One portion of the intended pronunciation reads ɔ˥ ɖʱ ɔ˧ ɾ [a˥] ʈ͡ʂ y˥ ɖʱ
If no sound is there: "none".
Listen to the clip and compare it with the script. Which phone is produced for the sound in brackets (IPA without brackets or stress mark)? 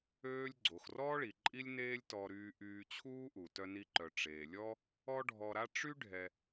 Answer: a˥